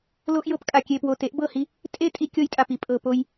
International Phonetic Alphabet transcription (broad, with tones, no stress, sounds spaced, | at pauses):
l o˦ ʔ j ɤ˧ p kʼ a˨ kʲ e˨ p w o˨ t e˨˦ ʔ b ɤ˦˨ h i˧ | tʼ e˦˨ tʼ i˧ kʲ ɤ˧ j tʼ a˨ p i˨ pʼ ɤ˨ p o˧ j